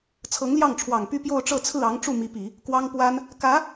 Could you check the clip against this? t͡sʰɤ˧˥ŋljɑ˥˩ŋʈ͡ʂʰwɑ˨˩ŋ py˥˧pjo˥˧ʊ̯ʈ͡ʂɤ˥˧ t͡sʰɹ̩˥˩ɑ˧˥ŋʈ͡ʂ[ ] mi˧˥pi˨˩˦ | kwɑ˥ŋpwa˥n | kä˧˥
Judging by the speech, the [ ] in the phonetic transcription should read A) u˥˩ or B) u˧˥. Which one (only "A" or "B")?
A